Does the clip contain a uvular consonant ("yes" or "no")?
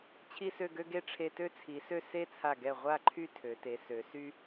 yes